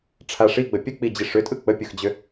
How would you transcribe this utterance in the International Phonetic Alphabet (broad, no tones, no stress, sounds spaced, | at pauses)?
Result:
ʈ͡ʂʰ a ʂ i ɡ͡b ə pʲ ə k͡p i d͡ʑ i ʂ ʏ tʼ ɯ k͡p ə pʲ ɯ x d͡ʑ ʏ